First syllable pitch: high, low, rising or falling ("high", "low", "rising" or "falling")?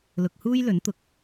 low